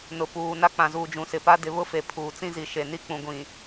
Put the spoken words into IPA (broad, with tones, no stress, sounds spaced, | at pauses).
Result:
n ʊ˨ p uː˨ n a˦ k͡p ã˨ z uː˨ d͡ʒ ũ˨ s ɪ˨ p a˦ d ɪ˨˦ β ʊ˦ f e˨ pʰ uː˨ t͡s ĩ˦ z i˨ ʃ e˨ n i˦ k͡p ũ˨ ɡʷ ĩ˨